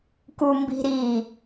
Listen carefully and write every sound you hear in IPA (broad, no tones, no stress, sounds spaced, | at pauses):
k u m b i̤ ɾ iː